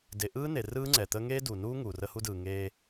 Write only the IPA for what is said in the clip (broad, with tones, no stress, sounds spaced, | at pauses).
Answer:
d e˨ ʔ ɯː˦ n e˨ r ɯː˦ ŋ͡ǀ ɛ˨ t̪ ə˦ ŋ eː˦ d u˨ n uː˦ ŋ uː˨ r ə˦ h u˦ d ɯː˨ ŋ eː˦